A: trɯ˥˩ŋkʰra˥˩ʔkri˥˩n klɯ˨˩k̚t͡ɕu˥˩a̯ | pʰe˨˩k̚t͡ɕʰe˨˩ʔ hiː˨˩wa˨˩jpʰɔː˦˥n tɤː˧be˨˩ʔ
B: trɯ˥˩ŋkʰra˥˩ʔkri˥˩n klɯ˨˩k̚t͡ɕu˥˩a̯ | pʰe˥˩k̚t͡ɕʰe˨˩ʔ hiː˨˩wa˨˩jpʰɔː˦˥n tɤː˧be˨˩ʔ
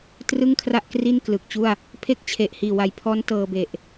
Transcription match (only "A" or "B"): B